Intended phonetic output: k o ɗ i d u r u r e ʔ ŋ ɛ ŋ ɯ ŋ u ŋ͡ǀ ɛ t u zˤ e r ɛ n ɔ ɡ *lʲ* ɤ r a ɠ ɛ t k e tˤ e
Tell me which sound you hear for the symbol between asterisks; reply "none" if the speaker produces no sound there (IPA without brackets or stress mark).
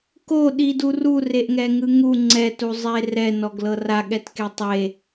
l